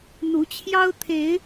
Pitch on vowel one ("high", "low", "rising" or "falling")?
rising